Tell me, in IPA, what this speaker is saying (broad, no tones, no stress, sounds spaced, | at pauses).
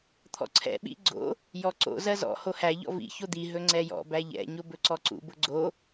t̪ʰ ɔ̰ ǀʰ ɛ̰ ɓ ḭ ɡ͡ǀ o̰ | j ɔ ǀ o̰ z ɜ z ɔ̰ h o h æ ʎ ɔ̰ v ḭ ç o d̪ i ɦ ɵ ŋ͡ǀ ɛ j ɔ̰ b æ ʎ ɛ̰ ɲ o b ɵ ǀ ɔ ǀ ṵ b ʊ ɡ͡ǀ o